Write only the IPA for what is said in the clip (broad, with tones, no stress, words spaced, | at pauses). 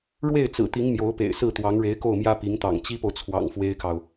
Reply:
ɻwe˥˩ɪ̯ t͡sɹ̩˨˩t̪i˧˥ŋ mjo˧˥ʊ̯pḛ˨˩ɪ̯ sɹ̩˥˩t̪wɑ˧˥ŋɻe˧˥ɪ̯ko˥˩ʊ̯ mjä˥pi˧˥ŋt̪ɑ̰˨˩ŋ t͡ɕi˥po˨ʊ̯t͡sʰwɑ̰˨˩ŋ fwe˥ɪ̯kɑ˨ʊ̯